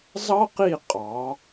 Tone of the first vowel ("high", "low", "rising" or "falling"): high